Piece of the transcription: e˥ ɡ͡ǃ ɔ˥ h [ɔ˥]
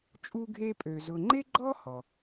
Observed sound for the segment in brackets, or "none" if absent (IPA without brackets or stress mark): ɔ˩